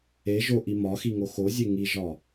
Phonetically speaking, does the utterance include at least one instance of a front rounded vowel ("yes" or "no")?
no